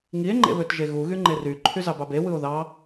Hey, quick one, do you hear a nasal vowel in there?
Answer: no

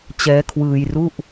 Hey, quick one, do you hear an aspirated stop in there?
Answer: yes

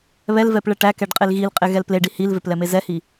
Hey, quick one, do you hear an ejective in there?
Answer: yes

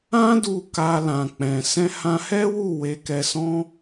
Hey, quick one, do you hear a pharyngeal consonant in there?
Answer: no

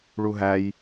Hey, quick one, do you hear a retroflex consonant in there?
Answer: yes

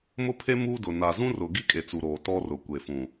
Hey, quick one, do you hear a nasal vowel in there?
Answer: yes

